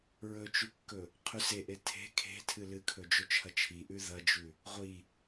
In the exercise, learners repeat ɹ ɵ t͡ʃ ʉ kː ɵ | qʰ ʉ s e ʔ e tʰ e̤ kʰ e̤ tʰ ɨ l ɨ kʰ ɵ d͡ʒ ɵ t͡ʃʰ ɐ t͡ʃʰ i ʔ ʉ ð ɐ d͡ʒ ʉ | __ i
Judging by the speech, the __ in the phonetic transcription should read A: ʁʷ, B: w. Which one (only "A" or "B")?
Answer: A